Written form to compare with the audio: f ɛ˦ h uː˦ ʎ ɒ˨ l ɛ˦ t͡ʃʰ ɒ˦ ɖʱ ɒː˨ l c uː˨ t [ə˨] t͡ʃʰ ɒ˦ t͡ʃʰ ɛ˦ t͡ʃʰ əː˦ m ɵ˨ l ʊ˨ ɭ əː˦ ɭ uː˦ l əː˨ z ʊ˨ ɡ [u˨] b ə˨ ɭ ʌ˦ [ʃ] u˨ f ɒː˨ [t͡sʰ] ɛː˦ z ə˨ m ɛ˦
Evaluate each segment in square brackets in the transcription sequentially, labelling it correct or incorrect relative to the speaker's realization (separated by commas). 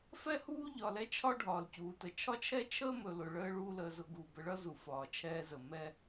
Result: correct, correct, incorrect, incorrect